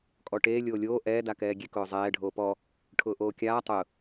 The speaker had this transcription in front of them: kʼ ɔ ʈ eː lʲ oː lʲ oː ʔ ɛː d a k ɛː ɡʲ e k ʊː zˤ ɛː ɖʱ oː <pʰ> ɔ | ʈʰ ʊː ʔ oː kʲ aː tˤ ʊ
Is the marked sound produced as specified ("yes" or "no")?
no